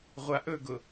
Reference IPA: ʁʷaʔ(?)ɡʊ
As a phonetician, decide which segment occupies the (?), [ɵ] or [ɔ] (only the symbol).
ɵ